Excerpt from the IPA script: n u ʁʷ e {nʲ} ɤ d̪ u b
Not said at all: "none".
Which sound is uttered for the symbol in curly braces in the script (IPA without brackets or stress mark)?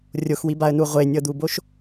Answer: nʲ